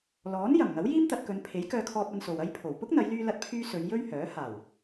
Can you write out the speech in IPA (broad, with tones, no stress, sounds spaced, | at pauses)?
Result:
l ɔː˨˥ n j ɐ˨˩ m ŋ ɐ˨˥ w j iː˥ m t̪ ɐ˧ t̚ k ɵ˨˧ n pʰ e˨˥ j k œː˧ kʰ ɔː˧ p̚ ɐ˧ n s o˨ w ɐ˥ j pʰ o˨˩ w p ʊ˥ k̚ n̪ ɐ˨˧ j l yː˧ l ɐ˧ t̚ pʰ yː˧ s ɵ˨˧ ɥ j ɵ˥ ɥ h œː˨˥ h aː˨˩ w